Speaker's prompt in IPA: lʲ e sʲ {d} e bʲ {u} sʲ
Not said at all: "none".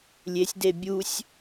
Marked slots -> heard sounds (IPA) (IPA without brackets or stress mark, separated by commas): d, u